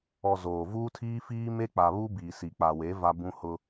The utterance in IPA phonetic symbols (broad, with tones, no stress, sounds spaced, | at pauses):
ɔ˨ z oː˨ v uː˦ tʰ iː˦ f iː˦ m e˦ k͡p a˨ β u˦ b iː˨ s i˨ k͡p a˨ w e˨˦ v a˦ b ũ˦ h ʊ˦